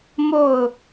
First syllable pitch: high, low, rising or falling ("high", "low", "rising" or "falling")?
falling